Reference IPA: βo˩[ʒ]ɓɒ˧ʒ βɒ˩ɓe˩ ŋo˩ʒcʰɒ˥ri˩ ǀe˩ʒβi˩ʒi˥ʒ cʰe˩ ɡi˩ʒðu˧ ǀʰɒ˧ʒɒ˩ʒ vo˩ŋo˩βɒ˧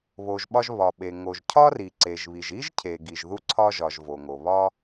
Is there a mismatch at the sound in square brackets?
no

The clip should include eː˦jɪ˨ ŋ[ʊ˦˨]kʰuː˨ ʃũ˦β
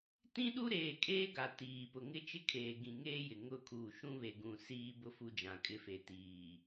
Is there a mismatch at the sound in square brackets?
no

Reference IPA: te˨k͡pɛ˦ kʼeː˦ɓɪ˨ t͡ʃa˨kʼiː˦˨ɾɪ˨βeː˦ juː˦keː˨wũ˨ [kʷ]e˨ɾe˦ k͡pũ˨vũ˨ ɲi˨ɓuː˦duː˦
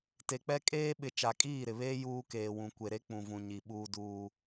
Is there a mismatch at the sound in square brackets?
no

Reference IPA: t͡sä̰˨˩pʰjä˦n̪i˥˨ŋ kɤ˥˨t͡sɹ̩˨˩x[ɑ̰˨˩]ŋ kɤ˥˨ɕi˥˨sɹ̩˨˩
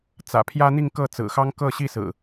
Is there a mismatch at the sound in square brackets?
yes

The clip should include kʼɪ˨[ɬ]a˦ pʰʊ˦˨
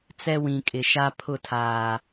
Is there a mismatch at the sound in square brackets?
yes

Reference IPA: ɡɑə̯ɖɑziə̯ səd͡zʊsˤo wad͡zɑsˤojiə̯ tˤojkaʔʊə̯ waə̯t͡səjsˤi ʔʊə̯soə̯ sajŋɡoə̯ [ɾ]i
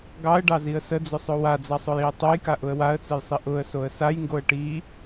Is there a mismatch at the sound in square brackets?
yes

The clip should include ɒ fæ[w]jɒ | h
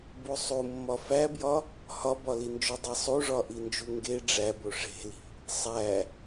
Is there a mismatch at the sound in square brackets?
yes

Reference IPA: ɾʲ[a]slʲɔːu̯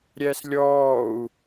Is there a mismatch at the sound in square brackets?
yes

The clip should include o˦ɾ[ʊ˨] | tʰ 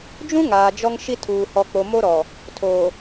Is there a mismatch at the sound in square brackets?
yes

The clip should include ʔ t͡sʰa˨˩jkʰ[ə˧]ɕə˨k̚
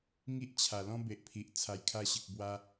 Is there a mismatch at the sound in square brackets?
yes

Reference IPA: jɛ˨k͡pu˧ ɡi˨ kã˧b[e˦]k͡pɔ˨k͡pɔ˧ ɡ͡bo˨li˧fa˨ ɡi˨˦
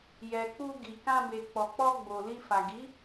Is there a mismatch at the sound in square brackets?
yes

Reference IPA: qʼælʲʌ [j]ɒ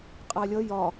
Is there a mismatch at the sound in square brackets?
no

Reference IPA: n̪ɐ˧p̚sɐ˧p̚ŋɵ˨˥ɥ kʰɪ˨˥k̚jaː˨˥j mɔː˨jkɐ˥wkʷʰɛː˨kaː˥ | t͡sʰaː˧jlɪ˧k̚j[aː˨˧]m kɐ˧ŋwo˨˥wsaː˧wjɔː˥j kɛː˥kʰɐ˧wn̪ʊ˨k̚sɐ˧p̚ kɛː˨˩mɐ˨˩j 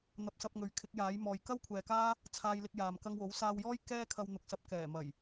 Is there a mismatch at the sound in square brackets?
yes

